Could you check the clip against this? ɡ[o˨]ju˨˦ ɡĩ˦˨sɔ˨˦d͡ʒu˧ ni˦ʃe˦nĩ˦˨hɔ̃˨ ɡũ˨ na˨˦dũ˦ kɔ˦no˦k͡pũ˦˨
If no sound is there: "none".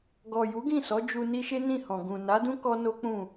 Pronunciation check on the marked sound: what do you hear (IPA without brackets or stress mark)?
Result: ɔ˨